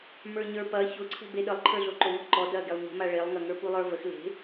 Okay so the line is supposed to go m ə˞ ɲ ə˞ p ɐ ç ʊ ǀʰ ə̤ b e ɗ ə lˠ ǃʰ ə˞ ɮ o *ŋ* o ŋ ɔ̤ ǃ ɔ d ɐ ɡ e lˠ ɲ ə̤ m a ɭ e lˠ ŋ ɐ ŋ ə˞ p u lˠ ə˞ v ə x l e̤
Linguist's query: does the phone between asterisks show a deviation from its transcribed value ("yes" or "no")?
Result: yes